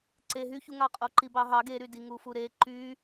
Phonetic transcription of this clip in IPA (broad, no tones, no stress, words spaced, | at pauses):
ǀe ɦyçuŋɑ qʼoǃibɑɦɑ ɡeɾy diŋufuɾe ǃy